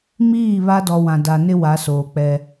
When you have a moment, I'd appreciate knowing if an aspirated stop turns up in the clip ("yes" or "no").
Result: no